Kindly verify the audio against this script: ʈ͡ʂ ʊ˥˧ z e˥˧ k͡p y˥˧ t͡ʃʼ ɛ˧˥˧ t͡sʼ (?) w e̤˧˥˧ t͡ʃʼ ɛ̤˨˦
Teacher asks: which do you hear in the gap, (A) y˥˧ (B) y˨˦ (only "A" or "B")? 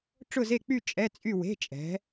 A